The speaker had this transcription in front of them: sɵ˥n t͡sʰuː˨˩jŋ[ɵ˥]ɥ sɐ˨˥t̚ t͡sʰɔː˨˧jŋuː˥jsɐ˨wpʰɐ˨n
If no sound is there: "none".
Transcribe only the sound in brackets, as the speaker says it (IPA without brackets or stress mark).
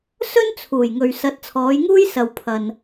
ɵ˨